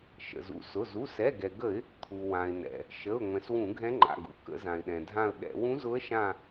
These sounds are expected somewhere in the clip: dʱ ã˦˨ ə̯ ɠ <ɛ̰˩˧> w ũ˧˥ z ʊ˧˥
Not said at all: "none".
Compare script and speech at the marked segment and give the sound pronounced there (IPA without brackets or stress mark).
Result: ɛ̰˧˩˧